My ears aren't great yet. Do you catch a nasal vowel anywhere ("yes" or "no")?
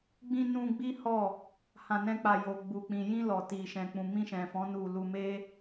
yes